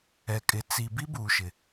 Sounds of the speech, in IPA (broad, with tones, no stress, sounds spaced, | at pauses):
ɛ˨ kʼ ɪ˨ t͡s i˨ b i˦ b uː˨ ʃ ɪ˨